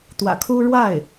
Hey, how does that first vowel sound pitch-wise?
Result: low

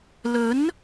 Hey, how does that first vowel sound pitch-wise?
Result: rising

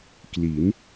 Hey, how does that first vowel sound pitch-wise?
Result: rising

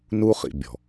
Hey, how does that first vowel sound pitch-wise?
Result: high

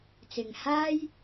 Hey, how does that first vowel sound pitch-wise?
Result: low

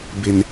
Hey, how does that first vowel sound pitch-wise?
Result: low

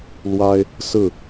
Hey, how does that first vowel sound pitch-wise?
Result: high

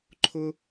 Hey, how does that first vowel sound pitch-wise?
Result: high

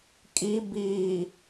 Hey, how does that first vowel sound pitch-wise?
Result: high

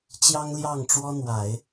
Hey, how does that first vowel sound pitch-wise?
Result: high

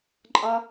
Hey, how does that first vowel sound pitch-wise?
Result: high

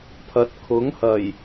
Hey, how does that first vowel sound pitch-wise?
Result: rising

